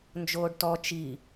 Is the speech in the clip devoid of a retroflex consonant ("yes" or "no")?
no